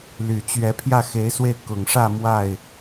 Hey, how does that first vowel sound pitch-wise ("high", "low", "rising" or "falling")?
low